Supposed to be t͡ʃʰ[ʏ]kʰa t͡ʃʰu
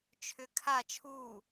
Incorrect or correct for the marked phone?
correct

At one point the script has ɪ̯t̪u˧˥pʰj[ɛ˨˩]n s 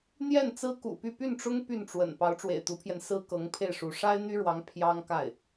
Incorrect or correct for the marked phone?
incorrect: ɛ˧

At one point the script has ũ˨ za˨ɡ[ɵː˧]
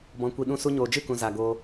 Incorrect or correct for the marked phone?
incorrect: oː˧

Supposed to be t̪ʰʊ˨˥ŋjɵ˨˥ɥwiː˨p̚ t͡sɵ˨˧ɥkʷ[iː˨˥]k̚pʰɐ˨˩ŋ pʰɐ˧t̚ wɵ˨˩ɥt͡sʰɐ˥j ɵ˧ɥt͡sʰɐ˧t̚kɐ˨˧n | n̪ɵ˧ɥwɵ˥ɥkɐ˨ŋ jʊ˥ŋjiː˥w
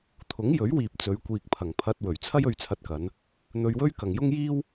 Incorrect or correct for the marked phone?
incorrect: iː˨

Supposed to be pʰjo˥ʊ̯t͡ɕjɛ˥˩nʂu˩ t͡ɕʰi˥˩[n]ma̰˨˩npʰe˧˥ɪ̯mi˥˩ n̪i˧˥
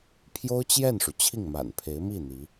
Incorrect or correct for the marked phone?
incorrect: ŋ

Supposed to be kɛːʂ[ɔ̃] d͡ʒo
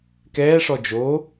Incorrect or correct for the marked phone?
incorrect: ɔ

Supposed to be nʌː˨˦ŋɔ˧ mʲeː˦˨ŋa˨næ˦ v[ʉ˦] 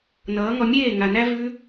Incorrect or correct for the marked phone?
correct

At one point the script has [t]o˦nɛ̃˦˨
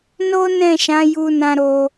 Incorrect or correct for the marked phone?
incorrect: n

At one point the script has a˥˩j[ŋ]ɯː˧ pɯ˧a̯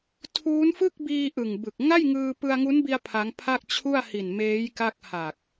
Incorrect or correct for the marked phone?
correct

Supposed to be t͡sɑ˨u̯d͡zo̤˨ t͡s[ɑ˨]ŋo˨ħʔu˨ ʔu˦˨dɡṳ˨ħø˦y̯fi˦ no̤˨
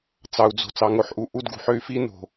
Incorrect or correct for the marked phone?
correct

